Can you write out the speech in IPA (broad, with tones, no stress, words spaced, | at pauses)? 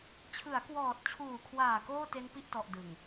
t͡ɕʰɯ˩˦a̯kwɔː˨˩t̚t͡ɕʰuː˨˩kʰwaː˨˩ koː˥˩te˦˥n pi˥˩ʔtɔ˨˩ʔ dɯ˨˩ŋ